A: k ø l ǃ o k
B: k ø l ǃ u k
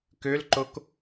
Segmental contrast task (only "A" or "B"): A